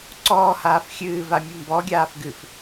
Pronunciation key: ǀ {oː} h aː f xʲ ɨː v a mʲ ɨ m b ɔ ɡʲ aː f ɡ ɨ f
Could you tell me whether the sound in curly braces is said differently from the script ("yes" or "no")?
yes